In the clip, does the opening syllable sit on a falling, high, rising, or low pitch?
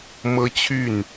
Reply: high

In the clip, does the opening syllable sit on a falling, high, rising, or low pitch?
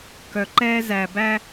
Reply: low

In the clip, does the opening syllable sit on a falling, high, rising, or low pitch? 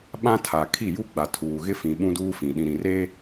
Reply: high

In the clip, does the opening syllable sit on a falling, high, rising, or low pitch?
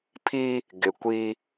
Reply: high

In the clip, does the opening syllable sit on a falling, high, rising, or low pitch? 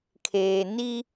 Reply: low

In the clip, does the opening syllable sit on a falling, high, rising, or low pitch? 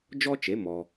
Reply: high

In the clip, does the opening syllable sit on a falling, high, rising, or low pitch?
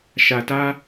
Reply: low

